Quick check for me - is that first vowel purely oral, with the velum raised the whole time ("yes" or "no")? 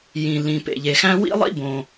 no